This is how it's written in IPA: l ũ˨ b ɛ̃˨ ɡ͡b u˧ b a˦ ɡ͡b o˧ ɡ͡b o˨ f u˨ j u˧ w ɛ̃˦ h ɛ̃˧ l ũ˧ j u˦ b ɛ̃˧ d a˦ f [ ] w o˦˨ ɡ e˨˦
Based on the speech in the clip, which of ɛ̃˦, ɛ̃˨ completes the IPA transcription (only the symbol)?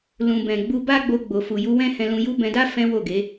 ɛ̃˦